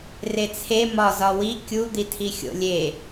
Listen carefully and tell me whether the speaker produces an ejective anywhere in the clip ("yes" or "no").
no